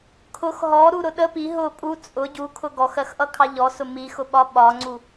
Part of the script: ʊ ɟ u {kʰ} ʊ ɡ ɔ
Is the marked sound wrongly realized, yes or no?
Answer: no